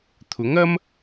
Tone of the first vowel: rising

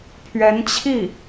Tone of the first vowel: rising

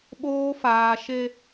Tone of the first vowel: high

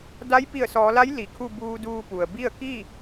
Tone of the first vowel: rising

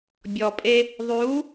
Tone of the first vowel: low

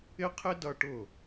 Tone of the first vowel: high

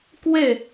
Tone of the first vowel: falling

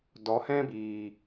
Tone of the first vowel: rising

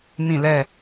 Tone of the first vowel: falling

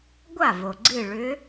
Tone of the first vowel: falling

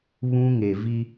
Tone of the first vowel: high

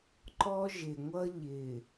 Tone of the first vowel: high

